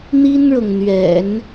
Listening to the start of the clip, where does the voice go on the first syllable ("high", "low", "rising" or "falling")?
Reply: high